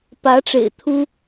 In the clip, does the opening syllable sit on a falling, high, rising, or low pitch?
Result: rising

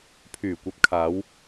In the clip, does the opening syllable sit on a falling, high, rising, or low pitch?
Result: low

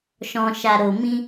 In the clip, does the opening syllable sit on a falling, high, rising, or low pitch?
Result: low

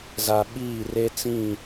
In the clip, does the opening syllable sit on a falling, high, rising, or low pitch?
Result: low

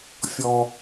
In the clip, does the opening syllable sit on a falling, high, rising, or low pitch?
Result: low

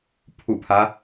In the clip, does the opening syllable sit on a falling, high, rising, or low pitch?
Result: low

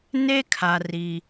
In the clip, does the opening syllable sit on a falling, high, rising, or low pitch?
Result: high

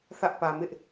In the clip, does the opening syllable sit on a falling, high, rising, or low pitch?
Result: high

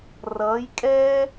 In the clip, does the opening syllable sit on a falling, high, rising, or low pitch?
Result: rising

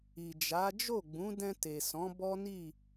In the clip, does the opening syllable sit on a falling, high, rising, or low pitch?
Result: low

